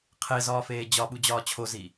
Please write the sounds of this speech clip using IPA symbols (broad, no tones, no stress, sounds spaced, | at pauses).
qʰ e z ɒː f eː d͡ʑ ɒ ɓ u d͡ʑ ɒː t͡ɕʰ o z i